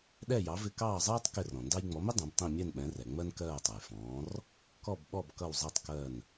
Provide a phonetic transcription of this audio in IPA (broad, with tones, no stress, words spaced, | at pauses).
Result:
ɗɛ˥˩jɑ˩˥vɪ˧ kɑː˥˩zˤɜː˥tˤ kɪ˥˩rɔ̃˩ndɑ˥j ŋ͡mɔ˩˥mɪ˥ dˤɛ̃˩˥btˤĩ˥˩ mʲɛ˥˩nɓɛ̃˩˥rɛ˩ ŋ͡mɜ˥nkɜː˥˩tˤʌ˩j fɔ̃ː˩˥r | kɔ˥˩bɓɔ˥˩b kʌ˥˩wzˤi˥˩tˤkɜ˥˩n